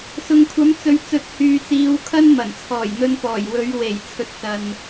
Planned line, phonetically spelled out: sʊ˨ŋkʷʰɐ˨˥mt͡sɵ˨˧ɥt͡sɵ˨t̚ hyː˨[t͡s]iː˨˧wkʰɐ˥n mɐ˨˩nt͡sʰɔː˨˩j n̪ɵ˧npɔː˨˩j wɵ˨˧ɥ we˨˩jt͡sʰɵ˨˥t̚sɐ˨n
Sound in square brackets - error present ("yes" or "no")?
no